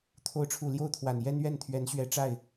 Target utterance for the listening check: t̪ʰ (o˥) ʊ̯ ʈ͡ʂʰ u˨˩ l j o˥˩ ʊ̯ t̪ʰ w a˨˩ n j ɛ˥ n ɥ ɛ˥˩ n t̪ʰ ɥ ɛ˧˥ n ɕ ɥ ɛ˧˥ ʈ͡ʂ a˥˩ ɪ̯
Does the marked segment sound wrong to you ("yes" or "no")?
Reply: yes